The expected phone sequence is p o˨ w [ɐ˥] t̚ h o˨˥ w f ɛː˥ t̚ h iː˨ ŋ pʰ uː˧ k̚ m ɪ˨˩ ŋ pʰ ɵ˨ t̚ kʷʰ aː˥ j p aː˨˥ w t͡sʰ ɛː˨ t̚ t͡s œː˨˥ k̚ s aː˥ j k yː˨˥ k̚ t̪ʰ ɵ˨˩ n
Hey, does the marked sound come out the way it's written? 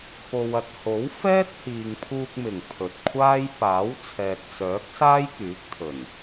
no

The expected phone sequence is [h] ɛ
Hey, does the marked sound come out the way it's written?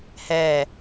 yes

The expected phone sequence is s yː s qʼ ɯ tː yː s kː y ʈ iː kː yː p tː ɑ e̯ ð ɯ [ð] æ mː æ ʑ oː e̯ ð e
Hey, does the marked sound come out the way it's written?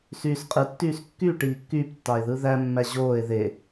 yes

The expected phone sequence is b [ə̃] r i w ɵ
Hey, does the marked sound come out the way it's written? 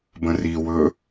yes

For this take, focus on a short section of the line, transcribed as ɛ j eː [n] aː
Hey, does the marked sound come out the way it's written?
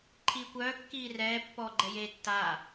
no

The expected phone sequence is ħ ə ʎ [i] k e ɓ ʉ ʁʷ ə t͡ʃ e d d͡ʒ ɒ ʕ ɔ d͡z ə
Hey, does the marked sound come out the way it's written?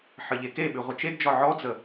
no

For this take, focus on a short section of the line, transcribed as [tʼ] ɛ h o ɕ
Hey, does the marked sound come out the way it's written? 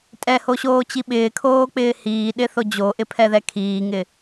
yes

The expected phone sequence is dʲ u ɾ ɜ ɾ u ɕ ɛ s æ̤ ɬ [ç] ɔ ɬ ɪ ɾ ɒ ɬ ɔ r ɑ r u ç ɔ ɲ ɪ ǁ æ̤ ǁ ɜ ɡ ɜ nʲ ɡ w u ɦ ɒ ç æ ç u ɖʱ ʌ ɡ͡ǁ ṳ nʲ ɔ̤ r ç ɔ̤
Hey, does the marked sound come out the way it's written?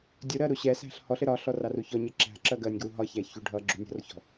no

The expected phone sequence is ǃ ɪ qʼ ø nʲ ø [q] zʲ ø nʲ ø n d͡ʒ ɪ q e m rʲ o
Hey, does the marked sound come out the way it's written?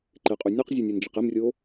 yes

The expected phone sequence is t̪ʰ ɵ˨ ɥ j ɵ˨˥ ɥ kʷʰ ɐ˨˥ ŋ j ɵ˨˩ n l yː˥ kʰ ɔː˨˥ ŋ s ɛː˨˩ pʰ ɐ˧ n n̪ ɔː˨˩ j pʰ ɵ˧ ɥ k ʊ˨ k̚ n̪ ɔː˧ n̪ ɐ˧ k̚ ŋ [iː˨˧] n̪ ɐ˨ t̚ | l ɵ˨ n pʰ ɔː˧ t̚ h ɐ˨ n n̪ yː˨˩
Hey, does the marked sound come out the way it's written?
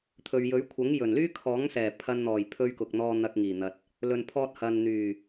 no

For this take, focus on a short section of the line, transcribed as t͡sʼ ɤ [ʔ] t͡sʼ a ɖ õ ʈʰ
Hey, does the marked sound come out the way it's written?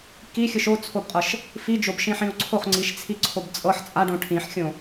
no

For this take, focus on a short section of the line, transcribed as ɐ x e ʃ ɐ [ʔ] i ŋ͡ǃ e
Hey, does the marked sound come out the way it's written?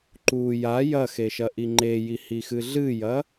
yes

